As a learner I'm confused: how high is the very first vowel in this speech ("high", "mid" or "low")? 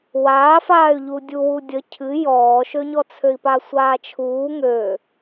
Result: low